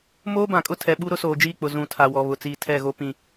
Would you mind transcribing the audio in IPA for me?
m oː˦ b ã˨ kʼ ʊ˦ tʰ ɛ˨ ɓ u˦ ɾ ʊ˦ s oː˨ d͡ʒ iː˦˨ k͡p ʊ˨ z ũ˨ tʰ a˨ w ɔ˨ β ʊ˨ t͡s iː˨ tʰ ɛ˦˨ ɣ o˦ p ĩ˦

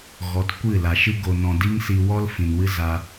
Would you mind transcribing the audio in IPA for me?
ɣ ɔ˨˦ t kʷ ɨ˦˨ l a˨ ʃ ɨ˦ ɡ o˨ n ɔ̃˨ d i˦ ŋ s i˧ w ɔ˦ l f ĩ˨ n w ɨ˦ z a˦

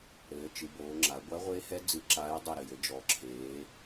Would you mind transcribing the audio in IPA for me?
ɾ ɘː˩˧ t͡ʃ ɨ˩˧ b oː˩˧ ŋ͡ǁ a˩˧ ɡʷ a˧˥ ʁʷ e˧˥ h ɛ˧˥ d͡z ɨ˧˩ ǁ aː˧˥ j dˤ ɨ˧˩ ɾ ɘ˧˩ j ɘ˩˧ d͡ʒ ɔ˩˧ ǁʰ eː˩˧

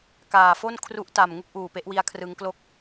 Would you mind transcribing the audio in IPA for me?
k aː˨˩ f o˥˩ n kʰ r u˦˥ ʔ t a˨˩ m ŋ u˥˩ k̚ ʔ uː˨˩ p e˦˥ ʔ w i˧ a̯ kʰ r ɯ˦˥ ŋ k l o˥˩ k̚

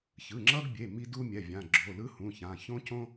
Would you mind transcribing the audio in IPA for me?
ç ɯ˩˧˩ ŋ͡ǁ ʌ˦ ɡ bʲ e˩˧˩ m i˦ d u˦ mʲ ɛ˩˧˩ vʲ ã˩˧˩ ɡ͡ǁ o˩˧˩ l ɯ˦ h ũ˩˧˩ ç ã˩˧˩ ç õ˦ c õ˦

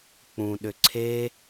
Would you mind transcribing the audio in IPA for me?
k͡p ũ ɗ ʏ ǀʰ e

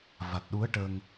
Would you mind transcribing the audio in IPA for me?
v a˨˩ t̚ ɗ u˧˥ ə̯ ʈ ə˧ ŋ

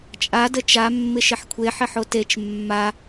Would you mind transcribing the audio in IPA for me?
t͡ʃʼ a d ə t͡ʃ a mː ɪ ʃ ɪ ħ kʷʰ e ħ ɪ ħ o t e t͡ʃ mː a

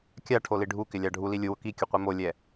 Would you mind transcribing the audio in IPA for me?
kʲ a ʈʰ o l i ɖʱ u k ɪ lʲ a ɖʱ u l i lʲ u w ʊ k i kʲ ʊ qʷ i m o lʲ ɛ

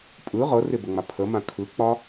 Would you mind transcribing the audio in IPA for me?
pʼ ɯ ʁ ɤ r ɪ b ə ŋ͡m a pʰ ə m ã kʰ ɯ k͡p ɒ

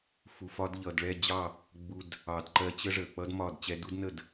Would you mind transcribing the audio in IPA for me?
f u˨ f ɒ˦ d ʎ ʌ˨ d ɭ ɛ˦˨ d͡ʑ ɑ˦˨ | ɡ͡b u˧ d | ɑ˨ d ǃ ɜ˧ t͡ɕ ə˦ ʐ ə˨ k͡p ʌ˦ d m ɒ˦˨ d t͡ɕ ɛ˧ d u˦ d n ə˦˨ d

